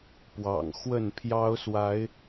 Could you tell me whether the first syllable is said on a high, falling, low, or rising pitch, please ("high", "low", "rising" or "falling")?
low